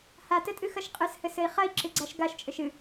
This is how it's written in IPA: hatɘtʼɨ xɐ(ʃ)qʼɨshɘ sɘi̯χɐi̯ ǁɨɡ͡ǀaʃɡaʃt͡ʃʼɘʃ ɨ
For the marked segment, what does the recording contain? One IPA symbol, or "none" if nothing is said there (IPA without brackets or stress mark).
ʃ